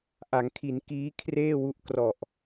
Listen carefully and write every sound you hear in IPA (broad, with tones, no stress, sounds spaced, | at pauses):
ʔ a˩˦ ŋ kʰ i˩˦ n k iː˦˥ kʰ r eː˥˩ w u˦˥ ʔ k r ɔ˨˩ ʔ